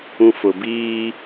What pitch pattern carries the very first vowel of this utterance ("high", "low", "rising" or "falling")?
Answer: low